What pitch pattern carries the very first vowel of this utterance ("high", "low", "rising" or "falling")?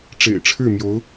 low